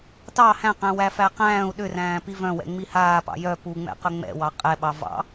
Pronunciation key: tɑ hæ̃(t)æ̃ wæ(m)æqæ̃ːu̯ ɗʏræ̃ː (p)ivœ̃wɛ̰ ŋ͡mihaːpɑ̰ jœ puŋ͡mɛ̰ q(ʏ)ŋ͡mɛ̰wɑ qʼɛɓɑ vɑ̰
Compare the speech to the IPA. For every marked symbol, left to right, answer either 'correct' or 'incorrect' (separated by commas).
incorrect, incorrect, correct, correct